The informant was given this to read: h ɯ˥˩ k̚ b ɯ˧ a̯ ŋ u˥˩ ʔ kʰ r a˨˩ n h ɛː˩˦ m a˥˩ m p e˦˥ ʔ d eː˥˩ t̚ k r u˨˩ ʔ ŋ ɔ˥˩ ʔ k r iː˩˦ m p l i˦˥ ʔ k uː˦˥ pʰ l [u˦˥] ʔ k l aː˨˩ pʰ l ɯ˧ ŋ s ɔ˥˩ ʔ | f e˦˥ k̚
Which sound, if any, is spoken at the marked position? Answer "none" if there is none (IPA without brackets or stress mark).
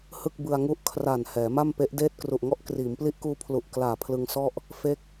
u˨˩